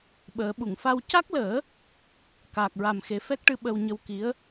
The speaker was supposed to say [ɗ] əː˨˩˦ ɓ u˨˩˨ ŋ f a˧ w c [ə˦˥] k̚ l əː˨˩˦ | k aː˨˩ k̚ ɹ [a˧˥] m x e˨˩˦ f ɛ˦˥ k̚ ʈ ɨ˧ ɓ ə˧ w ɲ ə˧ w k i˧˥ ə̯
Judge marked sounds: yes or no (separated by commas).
no, no, no